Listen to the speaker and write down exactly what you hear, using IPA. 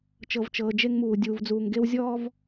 t͡ʃ ɤ˨ v t͡ʃ ɤː˨ d͡ʒ e˦ ŋ m uː˨ dʲ uː˨ v d͡z uː˨ ŋ ɡ e˦ w zʲ ɔː˦ v

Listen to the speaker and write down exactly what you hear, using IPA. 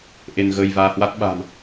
ʔ e˧ n ɣ əː˧ j v aː˧ h w a˦˥ t̚ ɓ a̤˨˩ m

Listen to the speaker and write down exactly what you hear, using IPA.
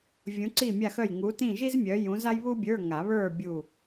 vʲ ũ˨˦ ǀ i˦˨ mʲ a˦˨ x œ˦˨ j ŋ u˨˦ t ĩ˦˨ ʒ i˥ z mʲ œ˨˦ j ũ˨˦ z a˥ j β u˥ bʲ ə˞˧˥˧ ŋ a˨˩˦ β ə˞˦˨ bʲ u˦˨

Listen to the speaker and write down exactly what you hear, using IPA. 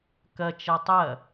k ɐ t͡ʃ ɐ tˤ ɐ

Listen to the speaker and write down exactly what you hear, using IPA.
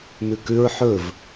m ʉ k ʉ ɹ ħ ɵ v

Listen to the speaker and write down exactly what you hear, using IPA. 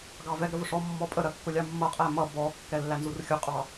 ɡ ɑ v ɛ ɡ ɾ ə v ʊ ʂ ɔ mː ɔ pʼ ə ɾ ɜ kː ʊ lʲ ɑ mː ʌ qʼ æ m ʌ b ɔ kː ɛ lː æ n z u r xʲ ʊ qʼ ɑ

